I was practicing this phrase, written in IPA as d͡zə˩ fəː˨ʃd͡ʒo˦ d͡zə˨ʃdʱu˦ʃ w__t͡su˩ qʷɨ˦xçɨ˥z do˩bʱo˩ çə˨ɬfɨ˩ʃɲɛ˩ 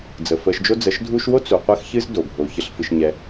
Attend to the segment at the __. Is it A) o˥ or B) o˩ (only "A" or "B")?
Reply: A